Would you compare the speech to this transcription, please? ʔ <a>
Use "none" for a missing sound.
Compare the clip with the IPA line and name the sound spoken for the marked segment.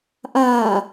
aː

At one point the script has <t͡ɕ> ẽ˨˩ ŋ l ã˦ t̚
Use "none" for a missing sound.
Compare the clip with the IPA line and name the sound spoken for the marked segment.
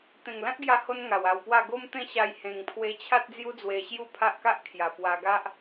t̪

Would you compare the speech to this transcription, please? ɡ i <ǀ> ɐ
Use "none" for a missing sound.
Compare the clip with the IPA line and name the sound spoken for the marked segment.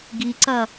ǀ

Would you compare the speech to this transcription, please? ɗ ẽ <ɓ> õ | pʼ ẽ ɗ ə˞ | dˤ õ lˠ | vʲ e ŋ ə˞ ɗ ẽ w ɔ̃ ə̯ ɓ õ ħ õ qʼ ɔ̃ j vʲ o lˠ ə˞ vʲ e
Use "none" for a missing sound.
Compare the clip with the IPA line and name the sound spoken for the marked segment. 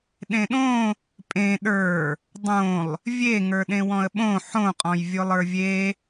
ɗ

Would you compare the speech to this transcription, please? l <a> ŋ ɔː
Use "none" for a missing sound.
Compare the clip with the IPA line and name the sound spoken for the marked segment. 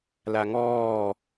a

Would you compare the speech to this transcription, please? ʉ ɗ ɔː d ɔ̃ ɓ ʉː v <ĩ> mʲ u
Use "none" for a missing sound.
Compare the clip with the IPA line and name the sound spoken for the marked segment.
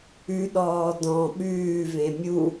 ẽ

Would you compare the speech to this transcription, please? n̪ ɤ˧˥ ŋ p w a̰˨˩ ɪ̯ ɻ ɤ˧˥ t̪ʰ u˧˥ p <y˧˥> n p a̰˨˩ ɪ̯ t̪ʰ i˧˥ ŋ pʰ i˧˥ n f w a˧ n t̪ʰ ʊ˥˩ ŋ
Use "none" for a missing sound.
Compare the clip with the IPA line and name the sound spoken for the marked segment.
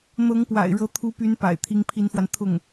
y˧˥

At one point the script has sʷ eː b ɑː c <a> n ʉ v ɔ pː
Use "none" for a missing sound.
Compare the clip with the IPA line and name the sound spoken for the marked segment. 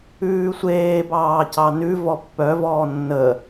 ɑ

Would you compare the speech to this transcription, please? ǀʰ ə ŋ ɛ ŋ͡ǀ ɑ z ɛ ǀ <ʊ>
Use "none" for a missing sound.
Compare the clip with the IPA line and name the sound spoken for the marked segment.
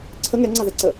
ə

